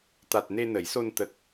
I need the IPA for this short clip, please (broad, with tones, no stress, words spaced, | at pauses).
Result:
t̪a˨˩t̚ ne˧nə˨˩˦jso˧n t̪ə˨˩k̚